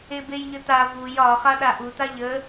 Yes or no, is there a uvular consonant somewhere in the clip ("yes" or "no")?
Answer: yes